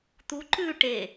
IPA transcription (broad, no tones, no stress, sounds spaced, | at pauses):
t̪ u ǃ ʉ ʈ e